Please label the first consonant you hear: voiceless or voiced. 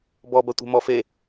voiced